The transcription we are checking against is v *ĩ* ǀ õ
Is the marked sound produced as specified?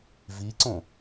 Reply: no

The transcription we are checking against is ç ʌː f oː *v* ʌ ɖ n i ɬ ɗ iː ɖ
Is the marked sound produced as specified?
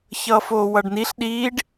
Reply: no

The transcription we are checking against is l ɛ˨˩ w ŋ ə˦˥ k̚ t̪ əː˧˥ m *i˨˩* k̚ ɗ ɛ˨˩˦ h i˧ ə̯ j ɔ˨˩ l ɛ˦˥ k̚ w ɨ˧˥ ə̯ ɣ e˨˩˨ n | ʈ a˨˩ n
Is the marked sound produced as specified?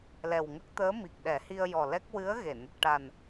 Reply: yes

